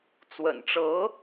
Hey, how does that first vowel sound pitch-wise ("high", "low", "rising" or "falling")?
low